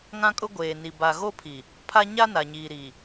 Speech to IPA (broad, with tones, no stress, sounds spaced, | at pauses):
ŋ ã˦ kʼ ʊ˦ ɡʷ eː˨ n i˨ b a˨ ɣ o˦ pʰ i˨ | pʰ a˦ ɲ a˦ n a˨ ɲ iː˨ ɾ iː˨